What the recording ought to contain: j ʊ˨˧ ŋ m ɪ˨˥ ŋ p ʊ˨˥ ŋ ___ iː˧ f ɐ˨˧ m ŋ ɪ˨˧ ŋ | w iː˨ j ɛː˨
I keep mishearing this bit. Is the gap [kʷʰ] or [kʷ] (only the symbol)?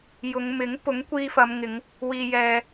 kʷ